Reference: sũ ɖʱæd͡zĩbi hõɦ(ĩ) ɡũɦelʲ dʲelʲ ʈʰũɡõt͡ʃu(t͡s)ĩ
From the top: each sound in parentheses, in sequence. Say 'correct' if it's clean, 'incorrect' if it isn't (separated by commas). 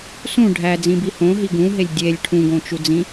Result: incorrect, incorrect